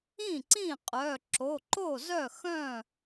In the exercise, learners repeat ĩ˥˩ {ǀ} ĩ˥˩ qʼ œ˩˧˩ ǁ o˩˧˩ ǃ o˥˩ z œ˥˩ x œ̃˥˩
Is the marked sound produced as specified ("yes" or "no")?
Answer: yes